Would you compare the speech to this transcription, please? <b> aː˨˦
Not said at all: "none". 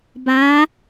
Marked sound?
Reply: b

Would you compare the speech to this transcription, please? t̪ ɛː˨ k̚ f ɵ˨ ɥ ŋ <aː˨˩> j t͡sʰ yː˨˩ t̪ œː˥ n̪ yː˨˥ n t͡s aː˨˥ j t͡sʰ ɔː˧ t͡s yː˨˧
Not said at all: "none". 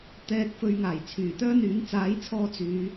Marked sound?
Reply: aː˨˩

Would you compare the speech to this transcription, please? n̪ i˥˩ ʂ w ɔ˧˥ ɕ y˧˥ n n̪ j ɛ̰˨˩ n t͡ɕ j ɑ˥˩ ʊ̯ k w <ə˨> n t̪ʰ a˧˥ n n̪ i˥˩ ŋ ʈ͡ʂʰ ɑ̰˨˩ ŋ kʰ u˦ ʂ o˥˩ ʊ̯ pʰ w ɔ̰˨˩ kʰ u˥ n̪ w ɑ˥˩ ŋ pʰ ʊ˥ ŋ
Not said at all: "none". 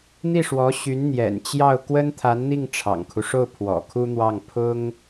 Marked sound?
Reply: ə˥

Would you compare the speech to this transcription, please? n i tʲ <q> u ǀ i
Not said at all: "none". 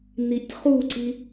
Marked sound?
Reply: χ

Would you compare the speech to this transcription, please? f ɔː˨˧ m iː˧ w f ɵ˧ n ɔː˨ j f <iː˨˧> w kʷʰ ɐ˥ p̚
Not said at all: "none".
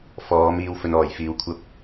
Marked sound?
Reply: iː˧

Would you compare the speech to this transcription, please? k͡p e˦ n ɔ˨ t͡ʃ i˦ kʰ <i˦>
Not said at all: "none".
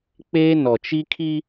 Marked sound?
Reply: i˦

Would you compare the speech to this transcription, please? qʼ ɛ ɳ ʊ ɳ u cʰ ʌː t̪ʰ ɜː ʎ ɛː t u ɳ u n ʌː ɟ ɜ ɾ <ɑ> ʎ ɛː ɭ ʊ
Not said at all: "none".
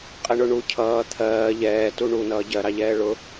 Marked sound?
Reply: ɑ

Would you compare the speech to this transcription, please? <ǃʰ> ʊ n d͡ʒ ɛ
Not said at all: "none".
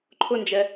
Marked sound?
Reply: ǃʰ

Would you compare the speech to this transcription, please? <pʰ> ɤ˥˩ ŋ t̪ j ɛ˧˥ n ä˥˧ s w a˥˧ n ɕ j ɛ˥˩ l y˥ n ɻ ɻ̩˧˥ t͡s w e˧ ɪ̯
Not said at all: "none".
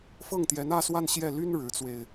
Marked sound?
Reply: f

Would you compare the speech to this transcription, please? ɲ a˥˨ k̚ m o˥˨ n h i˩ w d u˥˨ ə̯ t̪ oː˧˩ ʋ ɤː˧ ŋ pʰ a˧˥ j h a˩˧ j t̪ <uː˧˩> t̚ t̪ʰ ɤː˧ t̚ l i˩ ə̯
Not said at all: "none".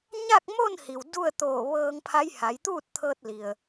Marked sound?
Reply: uː˥˨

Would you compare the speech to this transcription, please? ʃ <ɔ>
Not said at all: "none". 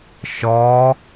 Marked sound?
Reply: ɔ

